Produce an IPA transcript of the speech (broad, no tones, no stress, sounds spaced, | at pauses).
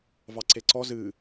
v ɑ ǀ e ǀ ɔ z ɨ